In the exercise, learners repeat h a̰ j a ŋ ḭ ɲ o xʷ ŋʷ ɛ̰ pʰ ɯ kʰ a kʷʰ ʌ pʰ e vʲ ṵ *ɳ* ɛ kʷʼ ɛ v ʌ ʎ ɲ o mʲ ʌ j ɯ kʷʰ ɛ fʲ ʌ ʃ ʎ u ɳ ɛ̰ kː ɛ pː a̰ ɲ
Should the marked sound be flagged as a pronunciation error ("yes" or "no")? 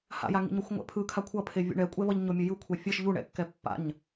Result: no